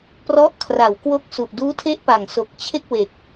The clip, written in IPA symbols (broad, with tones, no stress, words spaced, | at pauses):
prɔ˦˥ʔkʰra˩˦w kwo˦˥k̚su˨˩ʔduː˦˥ tʰe˦˥ʔpa˨˩ŋ so˨˩k̚t͡ɕʰe˥˩k̚we˨˩k̚